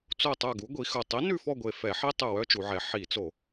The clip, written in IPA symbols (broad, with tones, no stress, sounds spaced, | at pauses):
t͡s o˦˨ tˤ œ˦˨ ɡ u˨˥ ɡʷ i˩˧ x ɵ˨˩ tˤ i˨˥ n ʉ˦˨ f ɔ˦˨ ɡʷ e˨˩ f ɛ˧˩˧ ħ i˥ tˤ ø˦˨ w œ˥ t͡ʃ u˩˧ ʕ ɛ˩˧ ħ i˧˩˧ t͡s o˧˩˧